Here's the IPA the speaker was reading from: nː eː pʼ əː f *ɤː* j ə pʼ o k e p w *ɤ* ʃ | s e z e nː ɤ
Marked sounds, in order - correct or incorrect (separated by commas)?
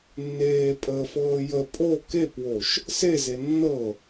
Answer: correct, incorrect